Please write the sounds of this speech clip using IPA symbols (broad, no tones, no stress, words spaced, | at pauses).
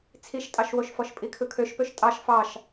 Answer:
t͡sʰiʃtʼɑʃwoʃfɔʃ pʼikʰɯkʰøʃpøʃ tʼɑʃ fɑʃ